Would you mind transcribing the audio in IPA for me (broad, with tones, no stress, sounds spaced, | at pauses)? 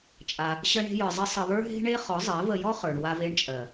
t͡ʃʼ a˧ | ɕ ə˦ ɳ e̤˦ j ə˞˧ zˤ ɘ˦ sˤ ə˧ β ə˞˦ ɦ e̤˦ ɳ e˦ χ ɔ˨˦ zˤ ɜ˨˦ v ə˧ j ɔ˦ χ ə˞˨ ɳ w a˧ v e˧ ɳ t͡ʃʼ ɜ˨